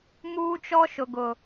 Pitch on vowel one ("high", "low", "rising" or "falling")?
high